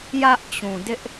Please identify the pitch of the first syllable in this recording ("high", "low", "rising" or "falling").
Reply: high